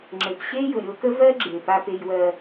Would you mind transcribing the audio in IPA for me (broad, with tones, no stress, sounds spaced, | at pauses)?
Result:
ŋ͡ǁ ɘ˨ p ɕ e˦ j ʊ˨ ɾʲ o˧ k ə˦ v ɜ˦ ɡ͡ǁ e˨ p a˧ p e˧ j w ɜ˧